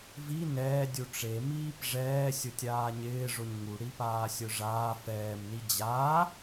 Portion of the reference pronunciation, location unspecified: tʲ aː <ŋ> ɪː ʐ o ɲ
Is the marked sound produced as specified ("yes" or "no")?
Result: no